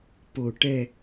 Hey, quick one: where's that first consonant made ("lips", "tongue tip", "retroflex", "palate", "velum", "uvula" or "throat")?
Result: lips